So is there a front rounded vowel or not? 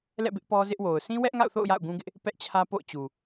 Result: no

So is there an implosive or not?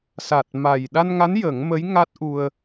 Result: yes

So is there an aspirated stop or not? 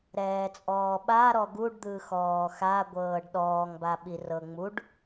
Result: no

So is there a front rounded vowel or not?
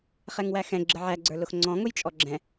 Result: no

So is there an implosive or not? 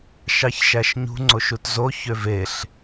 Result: no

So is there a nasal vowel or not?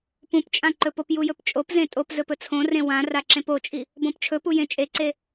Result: yes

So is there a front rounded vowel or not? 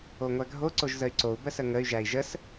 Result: yes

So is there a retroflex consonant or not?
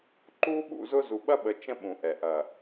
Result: no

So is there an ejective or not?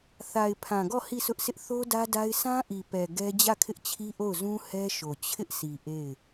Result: no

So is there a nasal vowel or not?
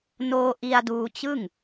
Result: no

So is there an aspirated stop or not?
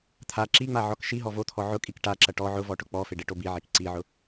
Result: yes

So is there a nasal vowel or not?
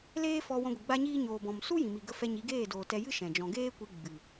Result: yes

